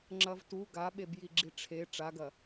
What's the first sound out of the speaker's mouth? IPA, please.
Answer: ŋ͡ǁ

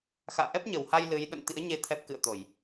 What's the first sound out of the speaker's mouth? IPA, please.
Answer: x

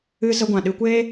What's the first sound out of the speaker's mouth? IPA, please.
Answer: ɨ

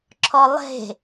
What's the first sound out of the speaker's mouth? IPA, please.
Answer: ǁʰ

